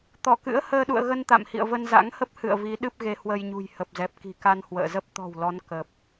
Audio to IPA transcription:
t̪ ɔ˧˩ k ɨ̰˧˥ ə̯ h əː˧ ɗ ṵ˧˨ ə̯ ɣ ə˧ n t̪ a̰˧˨ m h ḭ˧˨ ə̯ v ə˧ n z a̰˧˥ ŋ h ə˦˥ p̚ h ɨ̰˧˨ ə̯ v i˨˦ ɗ ɨ˦˥ p̚ ɣ e˨˦ h w ə˧ j ɲ ṳ˨˩ j h ə˨˩ p̚ z ɛ˨˩ p̚ k i̤˨˩ k a˧ n h w ə̰ː˧˨ z ə˦˥ p̚ t̪ ɔ̤˨˩ w l ɔ˨˦ n k ə˨˩ p̚

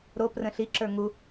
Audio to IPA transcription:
ɾ o p r ə̃ ɬ i ǁ ə˞ ŋ u

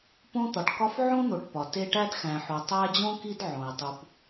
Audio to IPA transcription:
p õ˥ t̪ ɒ˩ ʈ k ɒ˦ f ʕ õ˥ n̪ o˩ ʈ p ɒ˩ t e˦ ʈ æ˥ d x æ̃˨ ħ o˨ tˤ æ˦ d͡ʑ õ˥ k i˦ d ʕ õ˩ ɪ̯ tˤ u˨ p

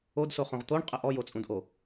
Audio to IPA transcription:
o d s o χ õ ʁ t̪ o ɳ qʼ ə ʔ ɔ j o t͡sʼ ũ d ʔ o

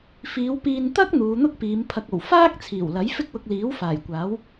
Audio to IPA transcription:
f iː˨˧ w p iː˧ n t̪ ɐ˥ k̚ n̪ uː˨˧ n̪ ʊ˥ k̚ p iː˨˧ m pʰ ɐ˧ k̚ o˨˩ w f aː˥ k̚ t͡sʰ iː˨˩ w l ɐ˨˥ j f ɪ˥ k̚ w ʊ˧ k̚ l iː˨˥ w f aː˨˩ j kʷ aː˨˥ w

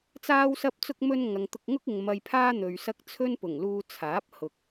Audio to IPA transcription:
t͡s aː˥ w s ɐ˥ p̚ t͡s ʊ˥ k̚ m ɵ˥ n ŋ ɐ˨ ŋ t̪ ʊ˧ k̚ ŋ ʊ˥ k̚ ɪ˨ ŋ m ɐ˧ j pʰ aː˥ n̪ ɵ˨ ɥ s ɐ˥ k̚ t͡sʰ ɵ˥ n p ʊ˨˩ ŋ l uː˧ t͡sʰ aː˨˥ p̚ h ʊ˨ k̚

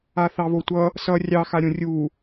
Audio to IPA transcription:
a θ ɑ β o tʷ ʌ | s ʌ rʲ ɑ x a ɾʲ õ rʲ u

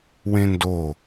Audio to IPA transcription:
w ẽ n d o

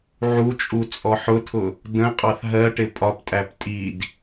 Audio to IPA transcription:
ʕ u t͡ʃʼ u t͡sʼ ɔ ħ ʊ tʰ ʊ | d ə̃ qʼ ɑ θ ɦ ɜ ʈ ɪ pʼ ɒ p tʼ æ p tʼ i d

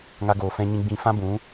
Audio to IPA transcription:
ŋ a˦ ɡ oː˧ f ɛ̃˦ ɲ ĩ˦ ɡ͡b ĩ˧ f ã˦ b ũ˨˦

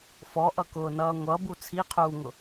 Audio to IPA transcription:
f ɔ ʔ ʌ k ʊː n ʌː ŋʷ ʌ b u t͡sʰ i qʰ uː ŋ ʊ

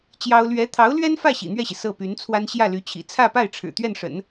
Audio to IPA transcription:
t͡ɕ j ɑ˥ ʊ̯ l ɥ ɛ˧˥ t̪ʰ ɑ˧˥ ʊ̯ l ɥ ɛ˥ n f ä˥˩ ɕ ḭ˨˩ n̪ ɥ ɛ˥˩ ɕ i˩ s ɤ˥˩ p y˧˥ n t͡sʰ w a˥ n ɕ j ä˥˩ l y˧˥ t͡ɕʰ ḭ˨˩ t͡sʰ ä˥˧ p a˥˩ ɪ̯ ʈ͡ʂʰ ɻ̩˨˩ t̪ ɥ ɛ˥˩ n ʂ ə̰˨˩˦ n

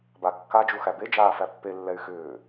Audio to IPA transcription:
b a kː a d͡ʒ u x æ b e d͡ʒ aː f æ pː e lː ɛ y̯ x ʏː

